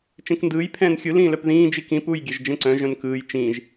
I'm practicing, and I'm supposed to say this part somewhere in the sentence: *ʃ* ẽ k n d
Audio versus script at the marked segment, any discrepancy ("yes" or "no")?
yes